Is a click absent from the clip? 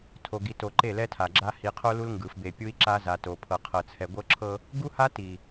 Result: no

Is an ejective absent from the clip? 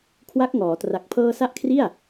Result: yes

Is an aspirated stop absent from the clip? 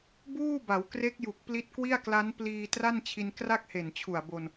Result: no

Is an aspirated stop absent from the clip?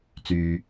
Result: yes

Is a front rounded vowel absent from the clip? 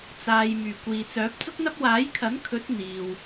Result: no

